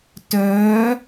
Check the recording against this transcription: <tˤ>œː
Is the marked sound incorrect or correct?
incorrect